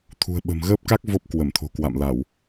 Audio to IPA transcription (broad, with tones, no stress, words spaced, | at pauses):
t̪ʰṳ˨˩ə̯ɓə̤˨˩mɣəː˦˥p̚ka˦˥k̚ vo˦˥p̚kwə˧˩mt̪ʰo̤˨˩kwa̰˧˨m la˧˩˨w